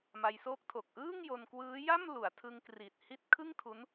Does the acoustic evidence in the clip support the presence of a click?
no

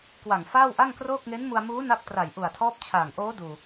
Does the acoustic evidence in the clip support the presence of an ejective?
no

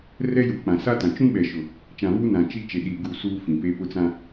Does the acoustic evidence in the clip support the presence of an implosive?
yes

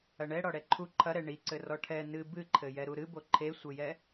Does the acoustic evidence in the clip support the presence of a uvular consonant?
no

